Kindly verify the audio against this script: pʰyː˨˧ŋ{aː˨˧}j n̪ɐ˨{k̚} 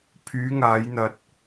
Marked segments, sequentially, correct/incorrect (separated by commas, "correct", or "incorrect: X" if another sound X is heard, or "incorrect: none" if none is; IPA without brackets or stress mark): correct, incorrect: t̚